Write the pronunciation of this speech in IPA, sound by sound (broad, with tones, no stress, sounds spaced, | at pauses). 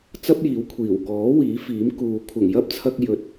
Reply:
t͡s ɐ˥ p̚ j iː˨˥ w kʷʰ iː˨˩ w k ɔː˨˥ w iː˨˥ f iː˨˥ m k uː˨ kʷʰ ɐ˨˩ ŋ j ɐ˥ p̚ t͡sʰ ɐ˧ k̚ j ɵ˨ t̚